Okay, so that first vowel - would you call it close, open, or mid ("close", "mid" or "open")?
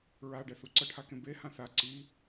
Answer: open